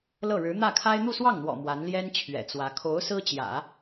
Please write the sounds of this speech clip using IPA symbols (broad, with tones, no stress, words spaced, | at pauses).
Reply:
lɤ˥˩ɻɻ̩˧˥ n̪ä˥˩kʰa˥ɪ̯ n̪u˥˧swɑ˥˩ŋn̪wɔ̰˨˩ mwa˧˥n ljɛ˥nt͡ɕʰɥɛ̰˨˩t͡swä˧˥ kʰo˧˥ʊ̯ sɹ̩˥t͡ɕjä̰˨˩˦